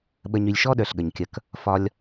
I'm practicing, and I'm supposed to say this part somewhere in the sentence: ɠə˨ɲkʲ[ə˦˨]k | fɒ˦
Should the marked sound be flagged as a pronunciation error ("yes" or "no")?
no